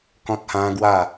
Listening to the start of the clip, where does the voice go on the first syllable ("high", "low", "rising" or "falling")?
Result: high